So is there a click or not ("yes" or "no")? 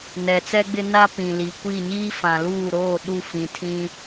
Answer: no